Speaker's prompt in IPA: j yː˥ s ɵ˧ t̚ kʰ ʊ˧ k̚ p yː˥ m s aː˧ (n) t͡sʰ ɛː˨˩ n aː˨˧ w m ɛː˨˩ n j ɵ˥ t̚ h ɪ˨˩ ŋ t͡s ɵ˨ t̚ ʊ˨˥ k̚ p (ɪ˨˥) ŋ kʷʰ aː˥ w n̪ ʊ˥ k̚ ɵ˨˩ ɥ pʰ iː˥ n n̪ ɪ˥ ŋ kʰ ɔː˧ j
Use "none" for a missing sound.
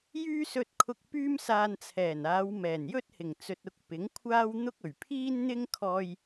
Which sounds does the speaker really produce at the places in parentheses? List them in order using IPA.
n, ɪ˨˥

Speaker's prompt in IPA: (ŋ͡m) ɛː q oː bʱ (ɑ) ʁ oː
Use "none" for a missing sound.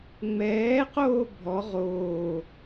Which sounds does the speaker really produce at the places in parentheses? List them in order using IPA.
ŋ͡m, ɔ

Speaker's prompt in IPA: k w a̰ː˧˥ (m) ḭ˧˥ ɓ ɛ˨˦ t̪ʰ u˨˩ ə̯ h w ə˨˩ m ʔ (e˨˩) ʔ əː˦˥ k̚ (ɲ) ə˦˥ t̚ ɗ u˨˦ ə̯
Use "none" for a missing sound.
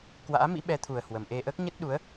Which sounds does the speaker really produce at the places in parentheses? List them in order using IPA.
m, e˧, ɲ

